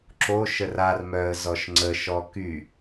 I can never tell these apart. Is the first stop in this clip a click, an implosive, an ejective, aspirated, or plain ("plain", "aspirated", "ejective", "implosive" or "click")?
click